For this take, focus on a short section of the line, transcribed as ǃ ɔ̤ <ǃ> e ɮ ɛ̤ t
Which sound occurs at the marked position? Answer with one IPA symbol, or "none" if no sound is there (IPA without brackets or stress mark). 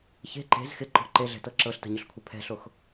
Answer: ǃ